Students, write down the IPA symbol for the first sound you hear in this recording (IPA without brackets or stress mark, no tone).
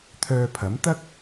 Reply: t̪ʰ